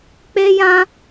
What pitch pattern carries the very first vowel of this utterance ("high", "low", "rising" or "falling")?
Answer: high